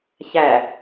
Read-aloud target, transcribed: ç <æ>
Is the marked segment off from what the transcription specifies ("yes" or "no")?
no